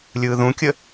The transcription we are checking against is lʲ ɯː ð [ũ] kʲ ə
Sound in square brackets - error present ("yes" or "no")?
no